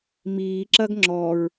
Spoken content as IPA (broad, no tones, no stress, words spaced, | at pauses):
miːǁɐɡ ŋ͡ǁɔɹ